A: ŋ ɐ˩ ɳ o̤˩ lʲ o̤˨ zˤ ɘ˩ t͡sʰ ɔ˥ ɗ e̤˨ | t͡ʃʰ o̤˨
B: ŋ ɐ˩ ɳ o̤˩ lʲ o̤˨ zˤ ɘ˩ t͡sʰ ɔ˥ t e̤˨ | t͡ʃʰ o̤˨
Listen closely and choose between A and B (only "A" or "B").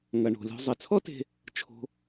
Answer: B